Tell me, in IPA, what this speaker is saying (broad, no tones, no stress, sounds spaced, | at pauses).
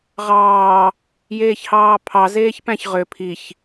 ʁ ɑː | j eː ç h ɑː pʰ ɑ z eː ç p æ̃ ç ʁ ø pʰ i ç